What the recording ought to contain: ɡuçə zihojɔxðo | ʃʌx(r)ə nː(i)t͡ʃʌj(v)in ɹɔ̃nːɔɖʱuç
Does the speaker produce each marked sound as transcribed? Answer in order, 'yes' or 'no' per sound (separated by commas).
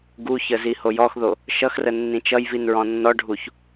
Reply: yes, no, yes